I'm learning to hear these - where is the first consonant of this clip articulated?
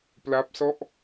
lips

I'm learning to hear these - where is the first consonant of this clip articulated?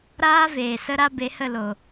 tongue tip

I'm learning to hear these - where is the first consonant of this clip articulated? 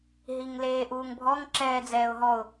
throat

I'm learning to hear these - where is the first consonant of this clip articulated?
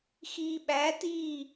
velum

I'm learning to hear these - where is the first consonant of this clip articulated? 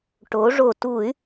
retroflex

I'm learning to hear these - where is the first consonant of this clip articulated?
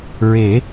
tongue tip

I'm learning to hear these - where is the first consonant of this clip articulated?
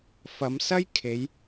lips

